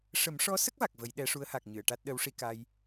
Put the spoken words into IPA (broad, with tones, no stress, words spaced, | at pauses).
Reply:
ʂə˨˩˦mʂɔ˧˥sə˦˥k̚ va˨˩k̚və˨˩˦jɗɛ˧˥ ʂu˧˥ə̯ha˨˩k̚ɲɨ˨˩˨ə̯ ʈa˦˥t̚ɗə˧˥wʂi˧ ka˧j